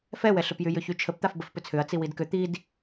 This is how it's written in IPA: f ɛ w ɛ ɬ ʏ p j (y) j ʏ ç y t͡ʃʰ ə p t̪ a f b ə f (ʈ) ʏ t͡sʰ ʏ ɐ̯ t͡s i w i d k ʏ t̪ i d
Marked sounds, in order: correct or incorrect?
correct, incorrect

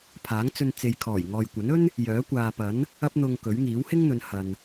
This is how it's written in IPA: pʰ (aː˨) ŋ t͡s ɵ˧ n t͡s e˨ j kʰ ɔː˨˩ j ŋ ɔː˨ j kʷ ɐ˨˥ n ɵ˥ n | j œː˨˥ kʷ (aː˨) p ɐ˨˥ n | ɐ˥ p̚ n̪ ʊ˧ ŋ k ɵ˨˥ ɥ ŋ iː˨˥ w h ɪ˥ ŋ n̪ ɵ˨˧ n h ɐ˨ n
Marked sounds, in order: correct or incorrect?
incorrect, correct

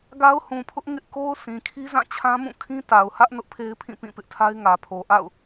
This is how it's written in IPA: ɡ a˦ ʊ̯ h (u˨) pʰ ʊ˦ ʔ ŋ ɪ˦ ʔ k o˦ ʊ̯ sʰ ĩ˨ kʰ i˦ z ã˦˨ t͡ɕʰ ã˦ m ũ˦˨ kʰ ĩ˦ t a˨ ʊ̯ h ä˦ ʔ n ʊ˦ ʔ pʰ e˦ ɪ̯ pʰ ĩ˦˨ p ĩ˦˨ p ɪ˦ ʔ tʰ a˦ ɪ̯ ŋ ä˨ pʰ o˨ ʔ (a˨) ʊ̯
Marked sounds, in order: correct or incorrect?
incorrect, incorrect

